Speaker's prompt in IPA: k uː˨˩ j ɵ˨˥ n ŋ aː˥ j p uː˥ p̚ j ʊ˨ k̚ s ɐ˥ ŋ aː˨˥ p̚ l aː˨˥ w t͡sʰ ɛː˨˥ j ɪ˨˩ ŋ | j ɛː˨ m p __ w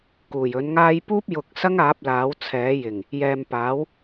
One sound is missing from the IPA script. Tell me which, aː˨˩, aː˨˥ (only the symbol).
aː˨˥